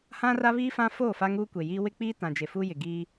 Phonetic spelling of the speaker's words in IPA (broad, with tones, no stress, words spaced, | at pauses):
hã˦ra˦βiː˦ fã˦foː˦˨ fa˦ŋuː˦kʷe˨jiː˦ wɪ˦k͡piː˦ tã˨d͡ʒe˨fuː˦jɪ˨ ɡiː˦